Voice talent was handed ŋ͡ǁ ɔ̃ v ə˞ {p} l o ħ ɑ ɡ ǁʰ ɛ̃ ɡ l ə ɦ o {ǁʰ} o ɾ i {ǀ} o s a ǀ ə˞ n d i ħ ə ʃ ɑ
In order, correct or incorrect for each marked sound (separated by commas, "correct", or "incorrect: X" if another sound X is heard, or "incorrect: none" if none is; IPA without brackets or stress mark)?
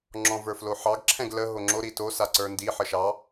incorrect: f, incorrect: ŋ͡ǁ, incorrect: t